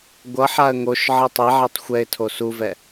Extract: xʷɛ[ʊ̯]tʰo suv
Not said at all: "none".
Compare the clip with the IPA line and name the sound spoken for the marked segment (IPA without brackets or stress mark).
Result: ɪ̯